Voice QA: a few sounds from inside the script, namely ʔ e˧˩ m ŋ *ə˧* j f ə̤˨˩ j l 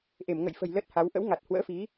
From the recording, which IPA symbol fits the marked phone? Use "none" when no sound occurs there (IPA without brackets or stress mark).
ə̰˧˨